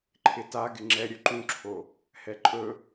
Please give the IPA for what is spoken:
ǃʰ ɪ t a ɡ ɪ ŋ͡ǁ ɛ ɾʲ ɵ ǃ ũ ǁʰ o | h ɛ ǃʼ ɵ

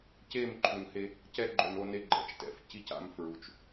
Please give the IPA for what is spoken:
c eː˦˨ m ǃʰ u˨ n h e˦ | c ɛ˦ ɡ͡ǃ o˨ n o˦ n e˦ ɡ͡ǃ ɛ̰˨ t͡ʃ t ɛ̰˨ f c i˦ c a̰˦ m f ɹ u˨˦ t͡ʃ

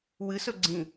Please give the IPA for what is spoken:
w ɨ s ɵ ɡ͡ǀ ĩ

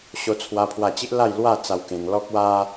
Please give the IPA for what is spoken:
ɕ o˧ t͡sʰ w a˦ pʰ w a˥˧ t͡ɕ i˦ ʔ l a˥˧ j l w a˥˧ t͡s a˧ w k ẽ˧ ŋ l ɔ˦ k̚ w a˦

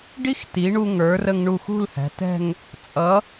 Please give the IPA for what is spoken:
ɖ i˥ x t i˩˧ ɳ u˧ ŋ ə˞˩˧ r ə˧ ŋ ɳ u˧˩ x ṳ˥˧ l h æ̤˩˧ t ɛ̤˥˧ ŋ | t͡sʼ ʌ˩˧

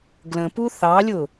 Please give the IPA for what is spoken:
ɡ l ə̃ p u θ ɑ lʲ ʊ

